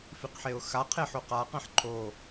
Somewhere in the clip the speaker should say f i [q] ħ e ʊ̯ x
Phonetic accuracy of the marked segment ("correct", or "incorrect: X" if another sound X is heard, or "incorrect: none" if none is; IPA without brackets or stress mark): correct